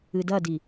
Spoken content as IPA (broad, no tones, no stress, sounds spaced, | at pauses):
ɨ d ɐ d i